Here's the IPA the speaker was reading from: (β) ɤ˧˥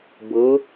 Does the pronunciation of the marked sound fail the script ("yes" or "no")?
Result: yes